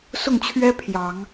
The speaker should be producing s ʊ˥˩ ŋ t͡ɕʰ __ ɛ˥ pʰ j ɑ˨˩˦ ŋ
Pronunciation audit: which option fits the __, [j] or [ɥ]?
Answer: ɥ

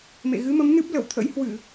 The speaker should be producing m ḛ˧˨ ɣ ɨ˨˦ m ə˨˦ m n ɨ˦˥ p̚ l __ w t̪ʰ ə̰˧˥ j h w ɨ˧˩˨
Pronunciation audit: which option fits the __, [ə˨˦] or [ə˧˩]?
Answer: ə˧˩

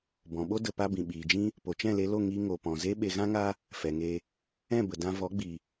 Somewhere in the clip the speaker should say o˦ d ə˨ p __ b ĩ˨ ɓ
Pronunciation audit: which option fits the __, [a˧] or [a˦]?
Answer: a˧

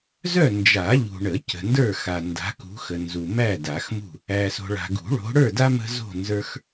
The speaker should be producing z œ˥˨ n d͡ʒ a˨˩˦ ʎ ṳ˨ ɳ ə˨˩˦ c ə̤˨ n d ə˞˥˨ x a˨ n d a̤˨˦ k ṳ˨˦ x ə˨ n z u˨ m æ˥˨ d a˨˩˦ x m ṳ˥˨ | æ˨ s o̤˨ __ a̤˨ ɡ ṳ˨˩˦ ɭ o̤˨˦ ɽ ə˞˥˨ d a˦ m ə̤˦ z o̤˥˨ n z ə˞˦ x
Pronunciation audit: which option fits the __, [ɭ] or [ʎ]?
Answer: ɭ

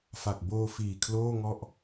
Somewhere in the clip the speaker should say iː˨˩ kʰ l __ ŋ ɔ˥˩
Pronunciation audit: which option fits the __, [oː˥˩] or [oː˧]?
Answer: oː˥˩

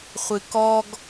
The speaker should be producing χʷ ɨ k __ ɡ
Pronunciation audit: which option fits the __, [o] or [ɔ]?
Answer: ɔ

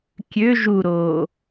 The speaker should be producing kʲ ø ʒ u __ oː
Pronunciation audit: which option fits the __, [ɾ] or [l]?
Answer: ɾ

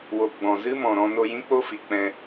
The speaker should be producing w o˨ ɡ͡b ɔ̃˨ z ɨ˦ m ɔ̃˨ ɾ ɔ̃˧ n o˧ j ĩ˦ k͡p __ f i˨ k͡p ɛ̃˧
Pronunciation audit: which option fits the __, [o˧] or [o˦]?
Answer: o˦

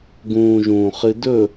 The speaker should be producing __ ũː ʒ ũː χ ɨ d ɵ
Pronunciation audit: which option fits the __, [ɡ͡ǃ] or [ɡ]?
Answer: ɡ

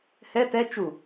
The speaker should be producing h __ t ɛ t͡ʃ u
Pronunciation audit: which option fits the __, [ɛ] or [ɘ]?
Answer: ɛ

